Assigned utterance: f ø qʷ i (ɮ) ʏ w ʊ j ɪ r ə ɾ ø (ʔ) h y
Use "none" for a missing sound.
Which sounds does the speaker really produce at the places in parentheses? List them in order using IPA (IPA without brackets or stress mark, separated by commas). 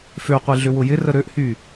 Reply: ɮ, ʔ